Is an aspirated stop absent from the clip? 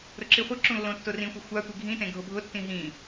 yes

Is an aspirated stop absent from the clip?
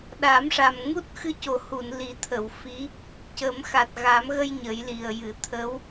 no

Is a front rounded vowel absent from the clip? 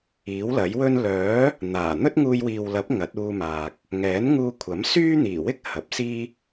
no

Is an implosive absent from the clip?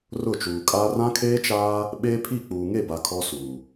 no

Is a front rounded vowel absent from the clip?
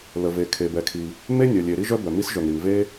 no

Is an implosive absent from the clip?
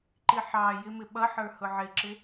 no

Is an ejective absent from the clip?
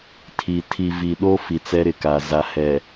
yes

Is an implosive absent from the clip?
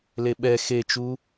no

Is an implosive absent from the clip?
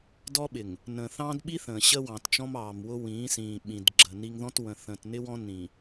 no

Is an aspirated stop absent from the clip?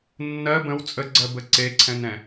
no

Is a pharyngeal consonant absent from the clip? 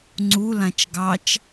yes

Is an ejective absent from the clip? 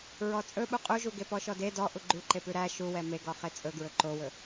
no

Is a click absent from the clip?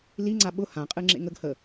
no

